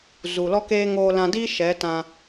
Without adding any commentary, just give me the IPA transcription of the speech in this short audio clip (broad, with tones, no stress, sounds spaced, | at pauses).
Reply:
z u˨ l ɔ˦ k eː˦ ŋ oː˧ l ã˧ d iː˦ ʃ ɛ˨˦ t ã˧